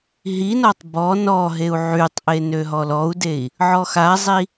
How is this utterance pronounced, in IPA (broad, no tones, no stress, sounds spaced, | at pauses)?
ɦ i n ɔ tˤ b ɔ n ɔ ɦ e u̯ ʕ y tˤ ʔ e n ø ɦ ɔ l ɔ u̯ d e i̯ | ʕ ɔ x a zˤ i